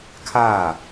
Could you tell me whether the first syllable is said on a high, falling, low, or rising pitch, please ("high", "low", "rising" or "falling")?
falling